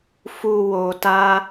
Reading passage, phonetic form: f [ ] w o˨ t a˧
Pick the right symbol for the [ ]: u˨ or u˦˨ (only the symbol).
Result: u˨